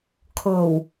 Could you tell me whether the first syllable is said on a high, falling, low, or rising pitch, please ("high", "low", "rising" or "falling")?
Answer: low